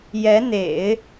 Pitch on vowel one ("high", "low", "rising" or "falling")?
rising